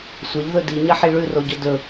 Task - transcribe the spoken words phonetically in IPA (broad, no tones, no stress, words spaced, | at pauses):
sʷɐʎðɵ diɲɐħi ɭʉroɟɵ dɵ